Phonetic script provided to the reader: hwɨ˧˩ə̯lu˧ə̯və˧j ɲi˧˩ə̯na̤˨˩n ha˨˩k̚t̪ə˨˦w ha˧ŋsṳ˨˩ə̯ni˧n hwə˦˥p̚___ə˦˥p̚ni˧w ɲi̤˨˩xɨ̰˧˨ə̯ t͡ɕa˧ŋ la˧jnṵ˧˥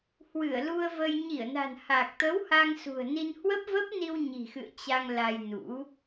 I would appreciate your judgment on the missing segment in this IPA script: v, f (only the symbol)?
v